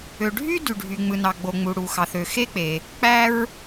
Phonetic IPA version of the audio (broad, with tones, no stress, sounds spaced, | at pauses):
ø˩ ɖʱ y˥ d y˩ ɖʱ y˩ ŋ͡m ɯ˩ n ɑ˩ ɡ͡b o˩ ŋ͡m u˩ ɽ u˩ x ɑ˩ θ ø˩ x e˥ k͡p e˩ | k͡p æ˥ ɹ